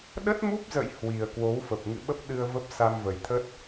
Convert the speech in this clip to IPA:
ɗə˦˥t̚mu˦˥p̚zə̰˧˨j hwi˨˩ə̯ kwo˨˦wfə˨˩p̚ ŋɨ̰˧˨ɓə˦˥p̚ ɗɨ˧ə̯və˦˥p̚ sa˧mvə˨˩jt̪ʰə˦˥t̚

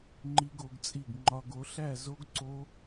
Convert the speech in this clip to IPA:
ŋ͡ǃi˦˥ɡo˩˥ɡt͡sʼi˥˩ɡ ŋ͡ǃɒ˧ɡ o˩˥ɬæ˥˩zo˦˥ɡ ǀo˦˥

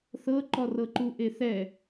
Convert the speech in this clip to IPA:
θɤǃɔrɤǃu ʔeθɛ

